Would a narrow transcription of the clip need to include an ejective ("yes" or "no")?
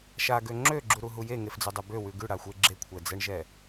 no